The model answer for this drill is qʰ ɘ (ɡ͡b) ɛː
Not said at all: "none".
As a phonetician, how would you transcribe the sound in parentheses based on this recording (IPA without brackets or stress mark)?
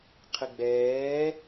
ɡ͡b